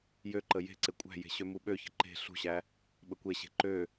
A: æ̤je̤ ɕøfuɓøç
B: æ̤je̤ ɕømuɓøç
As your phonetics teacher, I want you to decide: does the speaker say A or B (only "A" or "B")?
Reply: B